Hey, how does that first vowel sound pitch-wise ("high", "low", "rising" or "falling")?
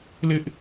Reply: high